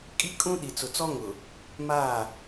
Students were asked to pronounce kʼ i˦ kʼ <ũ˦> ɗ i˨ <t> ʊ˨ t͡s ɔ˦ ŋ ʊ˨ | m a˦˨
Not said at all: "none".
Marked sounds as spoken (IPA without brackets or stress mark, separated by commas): ũ˦, t͡s